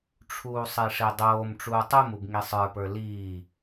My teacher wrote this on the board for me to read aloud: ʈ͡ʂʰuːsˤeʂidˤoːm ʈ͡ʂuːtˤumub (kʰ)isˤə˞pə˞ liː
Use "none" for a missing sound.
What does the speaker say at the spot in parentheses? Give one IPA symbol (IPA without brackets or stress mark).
ŋ